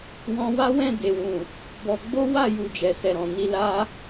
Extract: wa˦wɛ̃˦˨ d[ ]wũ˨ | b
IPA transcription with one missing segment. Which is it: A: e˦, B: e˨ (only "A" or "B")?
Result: B